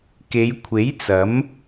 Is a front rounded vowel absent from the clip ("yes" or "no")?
yes